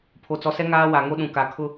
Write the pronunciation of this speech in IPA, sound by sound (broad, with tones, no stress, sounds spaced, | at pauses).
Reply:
pʰ o˨ t͡s ɔ˨ s ɛ˦ ŋ aː˦ w a˨ ŋ o˦ ɗ ũ˨ k a˨ kʰ ʊ˦